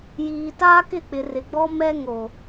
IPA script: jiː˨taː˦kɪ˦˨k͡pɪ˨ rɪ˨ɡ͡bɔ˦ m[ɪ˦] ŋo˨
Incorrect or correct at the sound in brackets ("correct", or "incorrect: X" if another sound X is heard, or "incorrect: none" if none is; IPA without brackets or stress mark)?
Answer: incorrect: ɛ˦